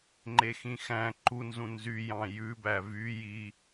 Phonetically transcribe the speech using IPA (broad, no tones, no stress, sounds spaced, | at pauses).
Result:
ŋ͡ǃ e x ĩ x æ̃ ǃ u n z ũ n z y j ɑ̃ j ʉ b æ v y j i